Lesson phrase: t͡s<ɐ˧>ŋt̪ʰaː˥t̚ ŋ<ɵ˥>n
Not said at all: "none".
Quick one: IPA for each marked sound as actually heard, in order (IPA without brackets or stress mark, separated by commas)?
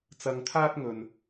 ɐ˧, ɵ˥